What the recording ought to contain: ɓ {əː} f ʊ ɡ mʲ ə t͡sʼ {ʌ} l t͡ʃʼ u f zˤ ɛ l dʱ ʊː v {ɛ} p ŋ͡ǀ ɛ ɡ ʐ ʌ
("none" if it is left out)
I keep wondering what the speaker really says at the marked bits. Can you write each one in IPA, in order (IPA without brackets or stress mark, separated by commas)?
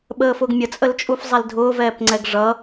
əː, ə, ɛː